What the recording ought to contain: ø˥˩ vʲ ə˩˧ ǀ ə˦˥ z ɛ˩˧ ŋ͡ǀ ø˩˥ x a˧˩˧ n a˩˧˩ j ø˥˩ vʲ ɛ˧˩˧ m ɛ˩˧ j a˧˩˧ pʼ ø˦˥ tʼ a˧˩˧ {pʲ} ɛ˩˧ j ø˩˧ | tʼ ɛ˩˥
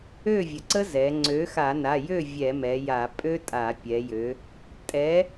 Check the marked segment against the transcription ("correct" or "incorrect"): correct